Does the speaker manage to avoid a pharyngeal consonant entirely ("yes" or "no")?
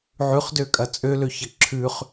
no